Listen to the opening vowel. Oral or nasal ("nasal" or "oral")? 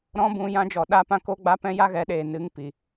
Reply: nasal